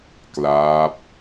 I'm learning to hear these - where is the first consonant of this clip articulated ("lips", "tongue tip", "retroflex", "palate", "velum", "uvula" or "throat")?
velum